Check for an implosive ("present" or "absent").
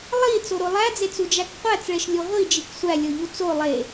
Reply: absent